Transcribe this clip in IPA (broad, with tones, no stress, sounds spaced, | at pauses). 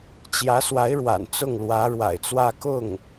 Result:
t͡ɕ j ä˧˥ s w a˧˥ ɪ̯ ɻ w a̰˨˩ n t͡s ʊ˥˩ ŋ l w ä˧˥ ɻ w a̰˨˩ ɪ̯ t͡s w ä˥˧ k ʊ˥˩ ŋ